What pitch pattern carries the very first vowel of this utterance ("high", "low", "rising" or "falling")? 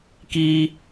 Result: low